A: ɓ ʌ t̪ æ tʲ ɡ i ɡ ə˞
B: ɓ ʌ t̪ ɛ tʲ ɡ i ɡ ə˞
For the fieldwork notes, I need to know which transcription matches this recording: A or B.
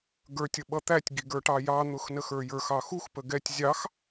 A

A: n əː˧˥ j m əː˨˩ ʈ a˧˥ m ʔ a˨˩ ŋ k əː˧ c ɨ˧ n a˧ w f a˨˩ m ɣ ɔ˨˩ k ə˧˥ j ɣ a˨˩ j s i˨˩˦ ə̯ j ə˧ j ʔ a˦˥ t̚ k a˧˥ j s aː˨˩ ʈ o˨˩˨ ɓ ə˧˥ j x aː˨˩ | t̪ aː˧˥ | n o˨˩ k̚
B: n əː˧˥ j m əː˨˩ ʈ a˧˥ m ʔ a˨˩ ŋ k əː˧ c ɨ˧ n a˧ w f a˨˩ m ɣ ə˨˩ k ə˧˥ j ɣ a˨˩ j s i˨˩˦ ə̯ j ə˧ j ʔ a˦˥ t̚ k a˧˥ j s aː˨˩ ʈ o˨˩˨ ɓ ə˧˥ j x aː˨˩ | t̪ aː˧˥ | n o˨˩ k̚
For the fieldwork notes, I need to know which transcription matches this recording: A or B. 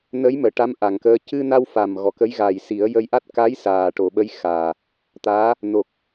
A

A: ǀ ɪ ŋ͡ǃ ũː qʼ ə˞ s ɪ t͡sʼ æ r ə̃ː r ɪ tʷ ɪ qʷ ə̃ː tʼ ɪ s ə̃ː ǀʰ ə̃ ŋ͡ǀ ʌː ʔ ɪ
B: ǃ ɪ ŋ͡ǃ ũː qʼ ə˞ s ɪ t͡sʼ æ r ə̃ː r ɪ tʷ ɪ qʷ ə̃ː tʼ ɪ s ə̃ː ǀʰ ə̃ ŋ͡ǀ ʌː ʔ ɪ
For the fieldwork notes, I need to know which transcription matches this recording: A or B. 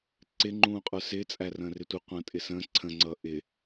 A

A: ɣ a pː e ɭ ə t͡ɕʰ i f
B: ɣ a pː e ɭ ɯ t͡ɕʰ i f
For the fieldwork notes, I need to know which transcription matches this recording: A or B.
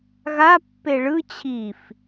B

